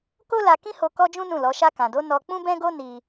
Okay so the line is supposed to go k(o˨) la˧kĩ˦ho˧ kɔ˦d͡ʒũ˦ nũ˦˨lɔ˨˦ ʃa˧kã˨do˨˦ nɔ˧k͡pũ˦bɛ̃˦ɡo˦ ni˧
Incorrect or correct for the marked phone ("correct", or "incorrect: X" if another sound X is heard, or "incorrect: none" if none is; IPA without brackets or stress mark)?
incorrect: o˦